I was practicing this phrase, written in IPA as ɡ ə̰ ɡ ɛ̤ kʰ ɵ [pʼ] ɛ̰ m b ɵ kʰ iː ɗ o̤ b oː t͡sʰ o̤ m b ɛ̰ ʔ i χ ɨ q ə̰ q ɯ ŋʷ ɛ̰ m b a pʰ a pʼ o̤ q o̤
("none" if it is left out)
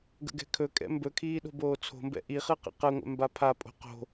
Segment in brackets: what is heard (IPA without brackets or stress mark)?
kʼ